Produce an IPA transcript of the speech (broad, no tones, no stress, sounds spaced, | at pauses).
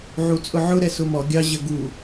ʕ u t͡sʼ ʊ ʕ ʊ ɾ ɛ s ʊ m ɔ ɡʲ ɑ ʑ ə ɡ u